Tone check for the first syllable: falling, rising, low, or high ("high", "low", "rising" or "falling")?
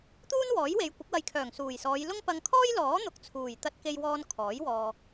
high